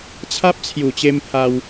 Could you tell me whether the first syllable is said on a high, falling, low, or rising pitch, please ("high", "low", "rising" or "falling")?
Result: high